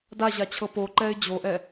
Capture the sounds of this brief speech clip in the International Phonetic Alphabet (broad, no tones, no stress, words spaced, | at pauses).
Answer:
daʑat͡ɕʰɤ poǃɛɪ̯ d͡ʑoʔɛ